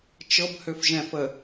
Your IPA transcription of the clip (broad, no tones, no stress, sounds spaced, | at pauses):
t͡ʃ ɤ b h ø f ʒ ɛ̃ f ə